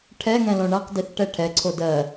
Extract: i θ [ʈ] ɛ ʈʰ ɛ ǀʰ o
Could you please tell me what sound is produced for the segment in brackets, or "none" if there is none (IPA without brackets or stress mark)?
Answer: ʈ